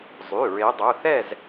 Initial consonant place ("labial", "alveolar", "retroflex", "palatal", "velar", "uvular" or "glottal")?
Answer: alveolar